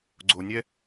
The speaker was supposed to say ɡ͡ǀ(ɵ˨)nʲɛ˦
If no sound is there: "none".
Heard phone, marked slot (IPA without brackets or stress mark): o˨